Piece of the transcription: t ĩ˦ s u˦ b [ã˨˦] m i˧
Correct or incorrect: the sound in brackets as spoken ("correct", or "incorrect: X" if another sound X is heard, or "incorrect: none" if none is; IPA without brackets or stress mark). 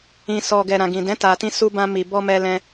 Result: incorrect: ã˦